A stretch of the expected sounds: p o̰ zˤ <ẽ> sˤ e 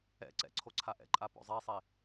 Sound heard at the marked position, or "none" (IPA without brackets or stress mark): e